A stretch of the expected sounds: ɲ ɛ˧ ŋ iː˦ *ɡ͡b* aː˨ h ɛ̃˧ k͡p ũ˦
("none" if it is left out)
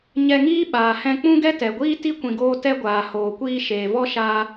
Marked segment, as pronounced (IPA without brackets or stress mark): ɓ